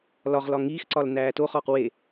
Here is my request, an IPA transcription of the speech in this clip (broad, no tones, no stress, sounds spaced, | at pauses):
l ɒ ʁ l ɒ ŋ iː x ǀ ɒ l n æː t o χ ɒː q w e